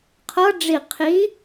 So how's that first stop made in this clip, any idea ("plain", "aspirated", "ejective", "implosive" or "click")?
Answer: aspirated